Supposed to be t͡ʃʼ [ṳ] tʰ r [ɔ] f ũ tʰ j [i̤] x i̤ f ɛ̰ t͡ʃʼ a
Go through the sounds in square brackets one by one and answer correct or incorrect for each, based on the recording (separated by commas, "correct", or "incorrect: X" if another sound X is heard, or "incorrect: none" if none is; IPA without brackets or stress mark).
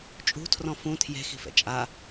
correct, incorrect: ɔ̃, incorrect: e̤